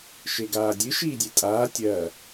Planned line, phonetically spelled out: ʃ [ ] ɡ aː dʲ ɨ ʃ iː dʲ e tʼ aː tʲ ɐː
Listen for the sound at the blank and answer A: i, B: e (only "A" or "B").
B